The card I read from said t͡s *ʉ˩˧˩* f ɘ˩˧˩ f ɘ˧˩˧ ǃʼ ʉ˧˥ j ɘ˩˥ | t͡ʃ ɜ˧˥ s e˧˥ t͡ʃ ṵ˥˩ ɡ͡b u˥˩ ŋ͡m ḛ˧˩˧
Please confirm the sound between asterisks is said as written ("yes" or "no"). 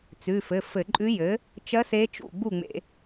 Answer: yes